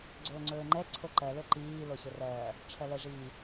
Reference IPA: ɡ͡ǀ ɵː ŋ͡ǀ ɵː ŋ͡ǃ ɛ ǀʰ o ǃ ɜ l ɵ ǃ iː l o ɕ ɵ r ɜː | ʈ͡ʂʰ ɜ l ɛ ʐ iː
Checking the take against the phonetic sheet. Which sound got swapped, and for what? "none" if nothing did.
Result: none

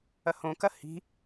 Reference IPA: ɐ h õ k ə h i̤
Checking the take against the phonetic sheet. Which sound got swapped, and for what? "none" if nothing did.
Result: ə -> ɐ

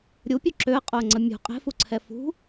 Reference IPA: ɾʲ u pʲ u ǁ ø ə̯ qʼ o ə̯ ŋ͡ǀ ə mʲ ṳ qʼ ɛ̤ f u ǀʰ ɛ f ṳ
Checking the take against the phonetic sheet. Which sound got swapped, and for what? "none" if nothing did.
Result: none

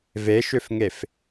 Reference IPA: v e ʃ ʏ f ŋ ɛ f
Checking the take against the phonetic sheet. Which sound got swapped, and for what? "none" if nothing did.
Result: ɛ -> e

